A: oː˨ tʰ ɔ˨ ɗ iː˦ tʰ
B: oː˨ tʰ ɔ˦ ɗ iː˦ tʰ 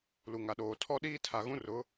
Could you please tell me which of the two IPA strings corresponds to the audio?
B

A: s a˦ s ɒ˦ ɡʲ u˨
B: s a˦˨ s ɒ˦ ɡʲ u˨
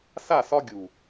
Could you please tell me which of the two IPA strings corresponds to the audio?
B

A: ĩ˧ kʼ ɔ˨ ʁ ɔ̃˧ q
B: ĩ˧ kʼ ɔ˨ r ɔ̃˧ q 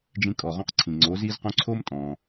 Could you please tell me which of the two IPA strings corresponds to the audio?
A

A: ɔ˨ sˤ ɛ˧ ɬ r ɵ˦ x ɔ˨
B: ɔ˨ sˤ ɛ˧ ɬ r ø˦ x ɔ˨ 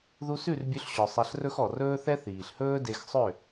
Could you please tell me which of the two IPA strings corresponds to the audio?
A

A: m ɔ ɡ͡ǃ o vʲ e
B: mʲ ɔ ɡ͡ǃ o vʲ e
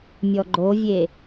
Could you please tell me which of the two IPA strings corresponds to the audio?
B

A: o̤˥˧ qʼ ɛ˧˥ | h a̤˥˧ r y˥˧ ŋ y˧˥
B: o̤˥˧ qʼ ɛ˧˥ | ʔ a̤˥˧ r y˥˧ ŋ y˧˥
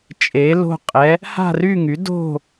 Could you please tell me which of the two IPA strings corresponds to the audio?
A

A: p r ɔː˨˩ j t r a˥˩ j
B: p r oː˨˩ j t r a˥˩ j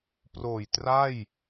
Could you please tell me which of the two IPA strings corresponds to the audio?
B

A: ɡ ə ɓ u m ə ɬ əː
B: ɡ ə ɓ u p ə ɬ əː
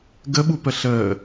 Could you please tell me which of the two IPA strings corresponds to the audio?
B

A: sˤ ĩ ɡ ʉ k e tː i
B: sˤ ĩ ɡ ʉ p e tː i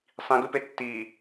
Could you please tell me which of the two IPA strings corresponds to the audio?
B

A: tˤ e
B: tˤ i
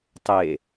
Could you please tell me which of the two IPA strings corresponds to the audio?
A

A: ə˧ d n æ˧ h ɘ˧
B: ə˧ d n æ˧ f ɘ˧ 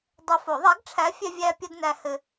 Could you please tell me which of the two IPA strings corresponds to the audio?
A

